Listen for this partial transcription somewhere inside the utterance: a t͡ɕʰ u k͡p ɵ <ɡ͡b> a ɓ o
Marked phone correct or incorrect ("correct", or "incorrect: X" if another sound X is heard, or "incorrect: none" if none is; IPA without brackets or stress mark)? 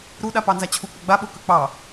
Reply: correct